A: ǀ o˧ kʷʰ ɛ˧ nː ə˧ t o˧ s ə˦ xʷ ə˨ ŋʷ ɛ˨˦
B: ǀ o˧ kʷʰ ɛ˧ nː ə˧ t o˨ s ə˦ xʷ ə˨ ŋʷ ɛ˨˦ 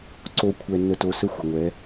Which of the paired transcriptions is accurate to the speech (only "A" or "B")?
A